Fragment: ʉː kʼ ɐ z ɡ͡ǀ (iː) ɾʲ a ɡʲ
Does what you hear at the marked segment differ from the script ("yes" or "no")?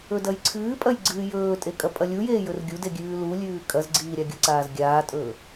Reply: no